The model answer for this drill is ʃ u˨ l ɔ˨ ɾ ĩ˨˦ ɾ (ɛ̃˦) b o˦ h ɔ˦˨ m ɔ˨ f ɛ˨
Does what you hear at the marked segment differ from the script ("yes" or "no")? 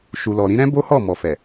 no